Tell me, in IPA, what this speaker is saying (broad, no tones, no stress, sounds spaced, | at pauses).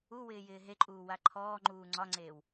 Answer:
u w ɪː j ɪː ɦ e ǃʼ uː w a ǃʰ ɔː ŋ͡ǃ uː ŋ͡ǀ ɒ ŋ͡ǀ eː w